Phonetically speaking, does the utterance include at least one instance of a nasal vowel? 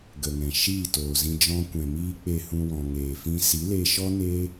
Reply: yes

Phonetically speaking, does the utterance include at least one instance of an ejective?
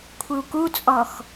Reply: yes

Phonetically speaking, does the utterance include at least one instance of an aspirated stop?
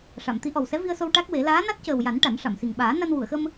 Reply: no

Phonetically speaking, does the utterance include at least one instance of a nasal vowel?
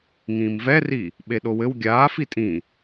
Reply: yes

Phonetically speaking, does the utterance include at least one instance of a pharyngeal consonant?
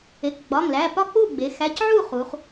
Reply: yes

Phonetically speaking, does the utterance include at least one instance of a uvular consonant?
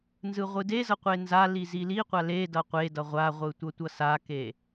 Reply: yes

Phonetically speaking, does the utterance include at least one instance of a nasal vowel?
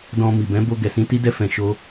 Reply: yes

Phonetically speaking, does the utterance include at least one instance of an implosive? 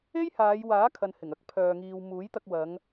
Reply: no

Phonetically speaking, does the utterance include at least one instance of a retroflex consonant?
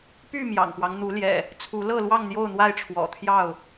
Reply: yes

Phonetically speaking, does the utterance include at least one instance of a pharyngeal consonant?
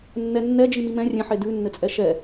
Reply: yes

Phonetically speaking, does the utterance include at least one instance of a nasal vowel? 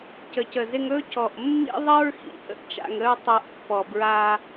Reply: no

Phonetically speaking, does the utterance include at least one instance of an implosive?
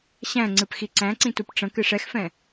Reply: no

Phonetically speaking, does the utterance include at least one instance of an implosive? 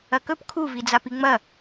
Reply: no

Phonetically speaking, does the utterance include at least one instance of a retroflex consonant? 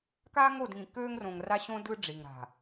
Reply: yes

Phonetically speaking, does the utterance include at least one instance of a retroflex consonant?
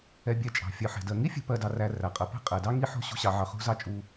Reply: no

